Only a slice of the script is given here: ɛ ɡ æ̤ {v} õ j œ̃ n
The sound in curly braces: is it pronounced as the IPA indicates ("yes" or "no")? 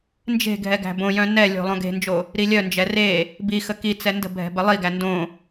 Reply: no